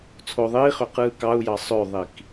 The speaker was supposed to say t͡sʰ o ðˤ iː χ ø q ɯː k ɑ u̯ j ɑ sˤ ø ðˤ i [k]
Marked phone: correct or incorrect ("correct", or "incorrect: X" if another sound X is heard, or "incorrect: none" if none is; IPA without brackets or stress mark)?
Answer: correct